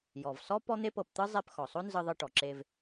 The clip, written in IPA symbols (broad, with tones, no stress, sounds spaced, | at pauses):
j ɔ˩ v s ɔ˥ p ɔ˥ n̪ e˥ p ɤ˧ p t̪ ɯ˥ zˤ e˧ p x ɔ˩ sˤ o˥ n z ɯ˧ ðˤ ɯ˧ ʈ ɔ˩ ǁ e˧ v